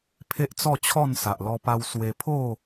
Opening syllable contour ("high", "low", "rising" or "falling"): high